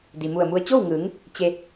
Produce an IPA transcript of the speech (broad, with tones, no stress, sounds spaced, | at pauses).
d i˩ m u˧˩ ə̯ m u˧ ə̯ t͡ɕ o˥˨ w ŋ ɯː˩˧ ŋ | t͡ɕ e˧